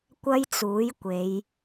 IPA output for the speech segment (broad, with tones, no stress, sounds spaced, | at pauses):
kʷ ɐ˥ j t͡s uː˨˥ j kʷ e˨˧ j